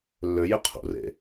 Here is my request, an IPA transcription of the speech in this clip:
lː ø j e qʰ ṵ r ḛ

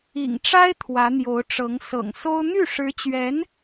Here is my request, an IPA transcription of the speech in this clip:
ḭ˨˩ ŋ ʈ͡ʂ a˥ ɪ̯ t̪ʰ w ä˧˥ n̪ j o˧˥ ʊ̯ ʈ͡ʂ ɤ˧˥ ŋ s ɤ̰˨˩ ŋ s o˥ ʊ̯ n̪ y˥˩ ʂ ɻ̩˧˥ t͡ɕ ɥ ɛ˧˥ n

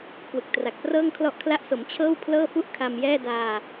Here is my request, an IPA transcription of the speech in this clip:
k w ɯ˨˩ k̚ t r a˨˩ k̚ p r ɤː˥˩ ŋ kʰ l ɔ˦˥ ʔ kʰ l a˦˥ ʔ s o˩˦ m t͡ɕʰ ɤː˥˩ w pʰ l ɤː˥˩ f u˥˩ ʔ kʰ a˧ m j ɛː˥˩ d aː˧

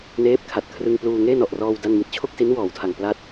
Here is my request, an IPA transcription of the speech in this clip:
n eː˦˥ p̚ kʰ a˨˩ t̚ kʰ r ɯ˧ ŋ p l uː˧ ŋ eː˥˩ n ɔ˨˩ ʔ r ɔː˧ w d a˥˩ n m i˥˩ t̚ t͡ɕʰ o˥˩ k̚ s i˦˥ n w ɔː˩˦ w tʰ a˨˩ ŋ p l a˥˩ t̚

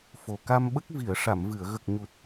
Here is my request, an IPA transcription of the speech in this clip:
f o˨˩ k a˧ m ɓ ə˦˥ k̚ v i˨˩˨ ə̯ ʂ a˨˩˨ m v ɨ˨˩˨ ə̯ ɣ ə˨˩ k̚ ɲ u˨˩ t̚

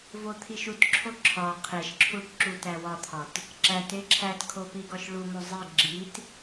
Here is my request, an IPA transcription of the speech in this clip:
v o t̪ʰ i ʃ u t ǁʰ o ǁʰ ɒ qʰ e ʃ ǁʰ u ʈ ǁ u t æ w ɒ t̪ʰ ɒ t | ǁ æ t e ǁʰ æ t kʰ o p i ɡ ɒ ʃ ɭ u m o zˤ i ɡ͡ǁ i t

